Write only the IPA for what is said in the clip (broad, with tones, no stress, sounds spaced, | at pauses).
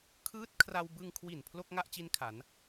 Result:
kʰ ɯː˦˥ t̚ kʰ r a˧ w b ɯ˧ ŋ kʰ w i˨˩ n pʰ l o˥˩ k̚ ŋ a˥˩ ʔ t͡ɕ i˦˥ n kʰ a˩˦ n